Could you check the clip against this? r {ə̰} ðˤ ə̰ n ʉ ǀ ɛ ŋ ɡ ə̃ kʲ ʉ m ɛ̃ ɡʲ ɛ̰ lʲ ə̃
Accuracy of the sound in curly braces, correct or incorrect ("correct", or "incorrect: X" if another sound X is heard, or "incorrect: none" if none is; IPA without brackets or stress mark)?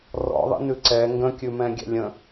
incorrect: ɔ̰